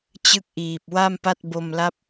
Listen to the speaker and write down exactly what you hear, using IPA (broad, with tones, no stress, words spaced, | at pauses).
t͡ɕɯ˦˥k̚ʔiː˨˩p̚ wa˥˩mpa˥˩t̚ bo˧mla˦˥p̚